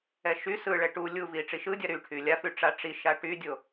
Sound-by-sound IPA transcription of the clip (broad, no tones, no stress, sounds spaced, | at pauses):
ɛ ʃ y s ɯ ɭ ɛ ʈ u lʲ u v i ʈ͡ʂ i ʃ ɯ dʲ a ɾ y ʈʰ y lʲ a f y ʈ͡ʂ a ʈ͡ʂ i ʃ a ʈ y dʲ o